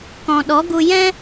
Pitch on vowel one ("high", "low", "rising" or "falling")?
low